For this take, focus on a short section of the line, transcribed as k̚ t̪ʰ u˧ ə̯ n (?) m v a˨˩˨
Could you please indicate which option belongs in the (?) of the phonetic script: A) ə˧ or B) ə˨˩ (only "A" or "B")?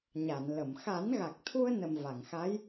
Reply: B